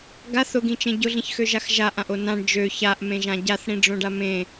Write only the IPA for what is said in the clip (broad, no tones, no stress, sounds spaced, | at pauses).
ɡ a θ ʊ ɡ ĩ t͡ʃ ẽ ɟ ʊ ɮ ĩ ç x ø ʒ a x ʒ a ʔ ã ʔ o n ã ɳ d͡ʒ ø ç a ʔ m ẽ ʒ ã ɟ a θ ɽ ĩ ɖ͡ʐ õ ɖ a m ẽ